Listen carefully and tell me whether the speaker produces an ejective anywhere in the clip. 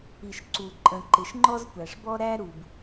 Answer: yes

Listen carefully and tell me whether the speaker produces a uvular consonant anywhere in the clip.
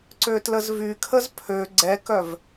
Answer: no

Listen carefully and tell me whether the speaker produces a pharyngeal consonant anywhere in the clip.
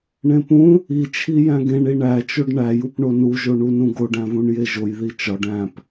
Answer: no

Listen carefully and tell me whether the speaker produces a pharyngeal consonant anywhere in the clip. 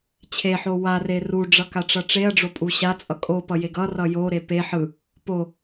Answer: yes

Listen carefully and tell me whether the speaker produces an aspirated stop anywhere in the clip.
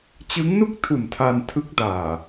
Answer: yes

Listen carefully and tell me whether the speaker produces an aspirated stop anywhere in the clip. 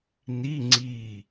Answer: no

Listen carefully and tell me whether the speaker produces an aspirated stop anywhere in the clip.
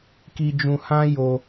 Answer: no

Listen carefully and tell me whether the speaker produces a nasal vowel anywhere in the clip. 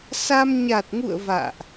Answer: no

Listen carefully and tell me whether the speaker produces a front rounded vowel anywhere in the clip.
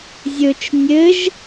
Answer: no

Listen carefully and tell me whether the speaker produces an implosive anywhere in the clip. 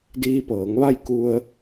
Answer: no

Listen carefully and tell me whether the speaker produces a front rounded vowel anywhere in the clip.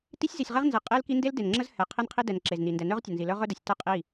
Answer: yes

